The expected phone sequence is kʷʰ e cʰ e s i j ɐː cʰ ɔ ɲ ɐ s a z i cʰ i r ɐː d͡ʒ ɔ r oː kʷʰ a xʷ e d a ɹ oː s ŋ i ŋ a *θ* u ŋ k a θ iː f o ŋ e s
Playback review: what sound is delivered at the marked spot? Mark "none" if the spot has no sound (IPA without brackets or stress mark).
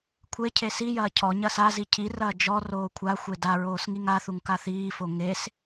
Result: θ